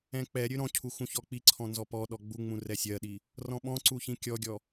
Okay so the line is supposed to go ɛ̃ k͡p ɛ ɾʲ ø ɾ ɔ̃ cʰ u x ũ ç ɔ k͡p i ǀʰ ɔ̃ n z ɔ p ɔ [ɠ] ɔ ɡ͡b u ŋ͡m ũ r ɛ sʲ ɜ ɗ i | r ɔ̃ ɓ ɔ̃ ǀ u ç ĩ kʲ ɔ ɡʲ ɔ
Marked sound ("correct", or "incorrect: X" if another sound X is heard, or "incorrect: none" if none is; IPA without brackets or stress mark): incorrect: ɗ